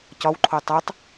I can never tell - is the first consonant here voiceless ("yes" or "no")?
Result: yes